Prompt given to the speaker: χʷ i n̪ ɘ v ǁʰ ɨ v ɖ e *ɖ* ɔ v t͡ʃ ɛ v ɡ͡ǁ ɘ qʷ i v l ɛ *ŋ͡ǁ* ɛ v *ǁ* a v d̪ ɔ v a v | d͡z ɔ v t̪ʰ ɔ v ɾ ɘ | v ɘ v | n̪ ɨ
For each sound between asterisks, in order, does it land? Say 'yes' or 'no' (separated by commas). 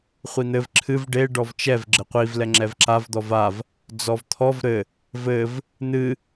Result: yes, yes, yes